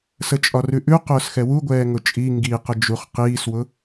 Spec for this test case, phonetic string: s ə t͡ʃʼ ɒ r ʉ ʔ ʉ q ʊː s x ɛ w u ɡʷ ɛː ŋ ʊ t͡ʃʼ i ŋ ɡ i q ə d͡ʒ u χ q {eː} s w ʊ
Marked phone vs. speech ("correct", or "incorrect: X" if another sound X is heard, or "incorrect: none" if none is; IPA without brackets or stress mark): incorrect: iː